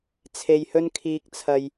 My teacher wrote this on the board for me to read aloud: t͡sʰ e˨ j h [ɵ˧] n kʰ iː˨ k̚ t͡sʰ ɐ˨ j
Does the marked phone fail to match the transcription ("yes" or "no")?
no